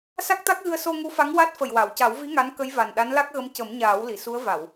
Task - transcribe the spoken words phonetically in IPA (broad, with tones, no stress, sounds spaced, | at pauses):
s a˦˥ k̚ t̪ a˦˥ k̚ ɣ ɨ˧ ə̯ s o˧ ŋ u˧˥ f a˧˥ ŋ w a˦˥ t̚ f ə˨˩ j w a˨˩˨ w c a˨˩˦ w v i˧˥ ŋ a˧˥ n k ə˧˥ j v a˨˩ n ɗ a˧˥ n l a˦˥ k̚ ɣ ə˧˥ m c ə˨˩˦ m ɲ aː˨˩˦ w l i˨˩˨ s u˧˥ ə̯ v a˨˩˨ w